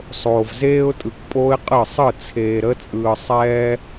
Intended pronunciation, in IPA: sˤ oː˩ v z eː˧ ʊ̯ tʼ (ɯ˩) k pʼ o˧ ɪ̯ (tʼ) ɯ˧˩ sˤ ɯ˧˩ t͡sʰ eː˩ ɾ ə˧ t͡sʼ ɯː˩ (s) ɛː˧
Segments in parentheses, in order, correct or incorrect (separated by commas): correct, incorrect, incorrect